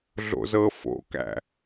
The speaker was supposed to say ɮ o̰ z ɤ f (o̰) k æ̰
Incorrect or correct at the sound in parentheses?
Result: correct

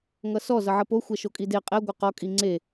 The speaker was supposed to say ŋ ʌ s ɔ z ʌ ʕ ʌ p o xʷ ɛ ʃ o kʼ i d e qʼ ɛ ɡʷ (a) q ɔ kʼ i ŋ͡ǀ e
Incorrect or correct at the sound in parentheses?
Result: incorrect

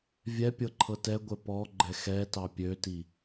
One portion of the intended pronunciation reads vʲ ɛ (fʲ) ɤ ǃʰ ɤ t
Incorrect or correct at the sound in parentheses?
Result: incorrect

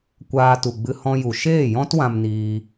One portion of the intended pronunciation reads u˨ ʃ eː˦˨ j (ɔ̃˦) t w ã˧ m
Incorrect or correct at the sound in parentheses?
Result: correct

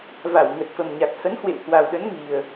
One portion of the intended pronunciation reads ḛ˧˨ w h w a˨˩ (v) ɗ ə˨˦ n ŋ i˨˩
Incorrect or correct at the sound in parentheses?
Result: incorrect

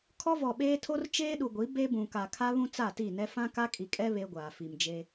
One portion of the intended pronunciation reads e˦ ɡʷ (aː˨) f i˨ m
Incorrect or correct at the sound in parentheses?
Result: correct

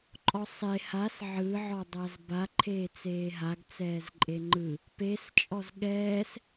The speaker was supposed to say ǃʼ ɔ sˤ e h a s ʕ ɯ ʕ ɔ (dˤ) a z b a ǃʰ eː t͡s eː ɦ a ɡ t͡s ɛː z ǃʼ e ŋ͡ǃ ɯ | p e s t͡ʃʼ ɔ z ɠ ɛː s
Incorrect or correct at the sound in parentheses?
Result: correct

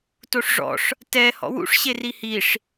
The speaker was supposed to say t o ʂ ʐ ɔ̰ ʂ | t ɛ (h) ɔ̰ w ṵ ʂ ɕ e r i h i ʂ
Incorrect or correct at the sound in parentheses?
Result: correct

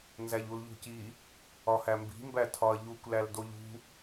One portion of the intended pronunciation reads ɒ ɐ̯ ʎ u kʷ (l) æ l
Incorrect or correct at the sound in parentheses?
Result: correct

